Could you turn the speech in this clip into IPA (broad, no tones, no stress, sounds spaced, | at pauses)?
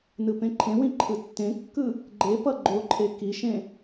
n ɯ p ẽ ǃʰ ẽ w ĩ ǃʰ ɯ tː ẽ kː ɯ | ɡ͡ǃ e p ʌ ɡ͡ǃ o ǃʰ e k i ʃ ẽ